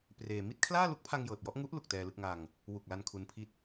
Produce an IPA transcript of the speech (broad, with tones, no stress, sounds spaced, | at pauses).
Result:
p r eː˧ m i˥˩ t̚ kʰ l aː˥˩ l u˦˥ k̚ pʰ a˧ ŋ j ɤː˨˩ t̚ j ɔ˥˩ ʔ ŋ u˦˥ ʔ l u˨˩ k̚ t ɛː˧ l ɯ˥˩ k̚ ŋ a˧ ŋ | w u˨˩ k̚ l a˧ n kʰ u˦˥ n pʰ i˥˩ t̚